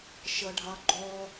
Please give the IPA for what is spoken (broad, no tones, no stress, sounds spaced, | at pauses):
ʃ ʌ ɖʱ ɑ ɡ͡ǃ ɔ